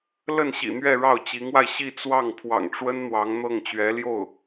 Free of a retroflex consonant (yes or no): no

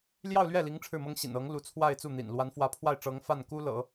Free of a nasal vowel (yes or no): yes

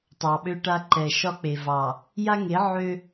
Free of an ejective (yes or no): yes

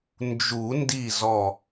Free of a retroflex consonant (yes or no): yes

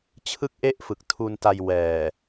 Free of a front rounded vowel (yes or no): yes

